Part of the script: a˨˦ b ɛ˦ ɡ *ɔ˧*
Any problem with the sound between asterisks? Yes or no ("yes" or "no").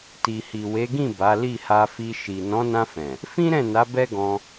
yes